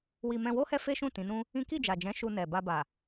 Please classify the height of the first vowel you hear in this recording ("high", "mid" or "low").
high